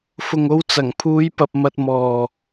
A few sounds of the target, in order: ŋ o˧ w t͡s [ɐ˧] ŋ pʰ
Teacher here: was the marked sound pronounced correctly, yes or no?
no